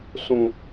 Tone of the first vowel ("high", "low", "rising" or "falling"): low